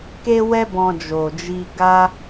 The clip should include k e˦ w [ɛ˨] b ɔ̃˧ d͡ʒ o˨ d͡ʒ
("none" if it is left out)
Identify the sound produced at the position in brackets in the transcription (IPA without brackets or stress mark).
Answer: ɛ˦